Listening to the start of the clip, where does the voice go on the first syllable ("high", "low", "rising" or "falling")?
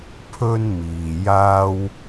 high